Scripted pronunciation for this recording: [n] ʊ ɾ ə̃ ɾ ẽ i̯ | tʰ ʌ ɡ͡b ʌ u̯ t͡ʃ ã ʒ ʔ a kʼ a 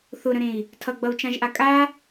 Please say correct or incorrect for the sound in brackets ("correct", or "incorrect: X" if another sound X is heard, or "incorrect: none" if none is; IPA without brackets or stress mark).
incorrect: θ